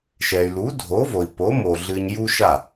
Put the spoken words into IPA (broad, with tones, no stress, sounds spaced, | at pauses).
ʃ ɛ˩ y̯ l u˩˥ dʱ o˩˥ v o˩ i̯ p o˩˥ m o˩ ɮ ɨ˧ ɲ j u˥ ʃ a˥˩